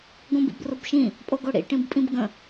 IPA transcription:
ɡ õ b ḭ b r ʊ b ʃ ĩ | pʼ o ɡ o ɽ ḭ ʈ ĩ b pʼ ĩ b ɡ ə̃

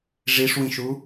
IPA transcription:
ʐ i ʂ w ĩ ʃ u

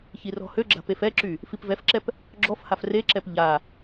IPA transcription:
ç i r ɔ̤ h ø ɡ͡ǁ a̤ p e f ɛ ǁ y | f i p v ɛ f ǁ ɛ p | ɡ͡ǁ ɔ f h a f r e ǁ ɛ p ʎ a

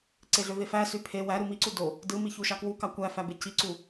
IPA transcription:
ǀ e ɮ ø v e f æ s y pʰ e w æ ɾ u m i ǀ u d o | d ɯ m i ç u ʃ ɑ k w u k ɑ kʷ æ f æ b e c i ǀ u

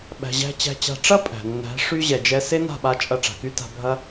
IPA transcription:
ɓ æ̤˨ ʑ æ̤˧ t͡ɕ æ̤˧ t͡ɕ a̤˧ ʈ͡ʂ ɐ˦ pʼ æ̤˨ nː æ̤˨˦ ʂ y˦ ʑ ɛ˨ d͡ʒ ɛ˧ s e˦ n a̤˦˨ ɓ a˧ t͡ʃʼ ɐ˧ ʈ͡ʂ a̤˨ k y˦ t a̤˧ bʱ ɐ˦

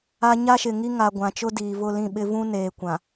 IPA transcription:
a˨ ɲ a˦ ʃ ɪ˨ ŋ i˦ ŋ a˨ ɡʷ ã˨ t͡ʃ ʊ˦ d iː˨ v ʊ˦˨ l ĩ˦˨ ɓ ɪ˦ v ũ˦ n eː˨ kʷ ã˨

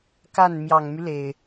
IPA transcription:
k a˥˩ n m j ɑ˨˩ ŋ m y˦ l e˩ ɪ̯

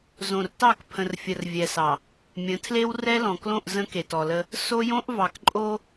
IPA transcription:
z õ˨ r t ɑ˦˨ k pʰ ə̃˨ r fʲ ə˨ r vʲ ɛ˨ s ɑ˨ | mʲ ə̃˨˦ tʰ l e˦ w r ɛ˦ l ɔ̃˨ k l õ˦˨ ʔ z ə̃˦ k e˨ t ɔ˨ l ə˦ | s o˦ j õ˦ ʔ v ɑ˨ k ǃʼ o˦

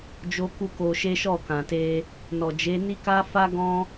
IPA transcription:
d͡ʒ o˦ k u˦ k o˧ ʃ e˦ ʃ ɔ˦˨ k ã˨ t e˧ | n ɔ˨ d͡ʒ e˨˦ n i˦ k a˦ f a˦ ɡ ɔ̃˦

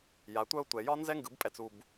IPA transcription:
j a˩˥ tʷ œ˥ ʊ̯ tʷ ɛ˨ j ɒ˥ n z ɛ˥ ŋ ɡ ɯ˨˩˦ b pʼ ɛ˨ t͡s u˨ b

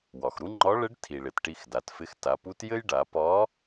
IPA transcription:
w ɒ˩ x ɾ u˥ ŋ͡ǃ ɒ˧˥ ɭ ɘ˧˥ ɖ tʰ i˩ ɭ ɪ˩ t ʈ i˧ x d a˩˧ t f ɪ˧˥ x t a˩˧ p u˧˥ t j ɘ˥ j ɖ a˩˧ p ɒ˧˥

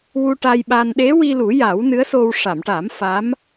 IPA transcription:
w u˧ ʈ a˧ j ɓ a˧ n ɗ e˧˥ w i˧ l u˨˩˦ j a˨˩˦ w n ɨ˧˥ ə̯ s o˧ w ʂ a˨˩˨ m ʈ a˨˩˦ m f a˧˥ m

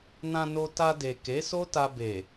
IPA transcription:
n ã˧ n o˧ t a˧ d e˨ k e˨˦ s o˦ t a˧ b e˨

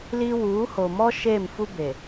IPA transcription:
l i˦ w uː˨˦ h o˨ m ɔ˦ ʃ eː˦˨ m f u˦ b e˨

